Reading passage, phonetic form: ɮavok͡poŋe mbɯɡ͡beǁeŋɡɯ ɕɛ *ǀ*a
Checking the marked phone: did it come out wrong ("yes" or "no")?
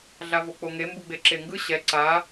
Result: no